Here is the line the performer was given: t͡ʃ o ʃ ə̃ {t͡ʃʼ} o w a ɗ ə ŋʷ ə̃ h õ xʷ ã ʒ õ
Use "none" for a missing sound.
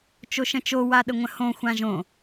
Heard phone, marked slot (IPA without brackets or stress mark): t͡ʃ